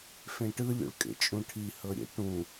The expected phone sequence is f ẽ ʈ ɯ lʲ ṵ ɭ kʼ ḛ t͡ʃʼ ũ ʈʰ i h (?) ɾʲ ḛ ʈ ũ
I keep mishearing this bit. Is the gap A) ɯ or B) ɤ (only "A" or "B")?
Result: B